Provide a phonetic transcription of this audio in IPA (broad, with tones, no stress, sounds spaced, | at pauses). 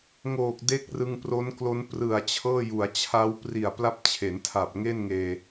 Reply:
ŋ oː˨˩ k̚ d e˦˥ k̚ r ɯ˧ ŋ p r o˦˥ n k l o˦˥ n p r ɯ˨˩ a̯ t͡ɕʰ ɤː˥˩ j u˩˦ a̯ t͡ɕʰ a˦˥ w p r i˨˩ a̯ p l a˦˥ p̚ t͡ɕʰ e˩˦ n tʰ a˨˩ p̚ ŋ e˥˩ n ŋ eː˧